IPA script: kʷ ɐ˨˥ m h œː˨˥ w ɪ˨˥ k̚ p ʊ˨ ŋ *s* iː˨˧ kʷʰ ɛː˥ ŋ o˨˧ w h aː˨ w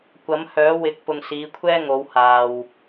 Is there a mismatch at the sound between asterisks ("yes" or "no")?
no